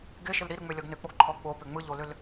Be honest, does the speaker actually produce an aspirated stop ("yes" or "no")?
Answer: yes